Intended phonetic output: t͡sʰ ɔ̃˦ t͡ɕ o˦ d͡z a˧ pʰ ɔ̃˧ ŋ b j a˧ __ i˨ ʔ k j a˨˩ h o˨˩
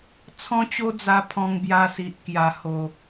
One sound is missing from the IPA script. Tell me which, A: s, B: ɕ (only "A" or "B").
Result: A